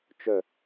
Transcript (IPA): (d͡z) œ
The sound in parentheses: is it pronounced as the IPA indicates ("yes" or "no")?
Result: no